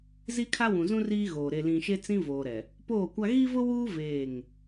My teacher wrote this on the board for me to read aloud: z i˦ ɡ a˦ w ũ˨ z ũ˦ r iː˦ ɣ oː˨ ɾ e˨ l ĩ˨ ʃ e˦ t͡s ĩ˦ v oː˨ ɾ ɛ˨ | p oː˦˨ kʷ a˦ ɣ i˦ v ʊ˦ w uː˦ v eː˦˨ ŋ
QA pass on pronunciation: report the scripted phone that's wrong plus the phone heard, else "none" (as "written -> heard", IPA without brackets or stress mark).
ɡ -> kʰ